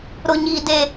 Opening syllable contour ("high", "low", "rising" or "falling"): high